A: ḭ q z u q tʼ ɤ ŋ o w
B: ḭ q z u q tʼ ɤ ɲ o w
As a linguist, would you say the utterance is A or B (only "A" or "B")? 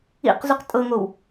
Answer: A